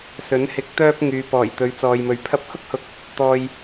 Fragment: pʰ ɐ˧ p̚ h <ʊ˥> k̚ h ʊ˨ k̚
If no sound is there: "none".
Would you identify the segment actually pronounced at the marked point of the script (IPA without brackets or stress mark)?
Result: ʊ˥